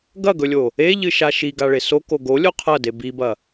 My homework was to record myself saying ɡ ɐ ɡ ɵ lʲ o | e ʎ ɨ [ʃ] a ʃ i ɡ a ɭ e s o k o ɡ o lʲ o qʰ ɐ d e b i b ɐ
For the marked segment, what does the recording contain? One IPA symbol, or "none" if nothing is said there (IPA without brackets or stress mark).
ʃ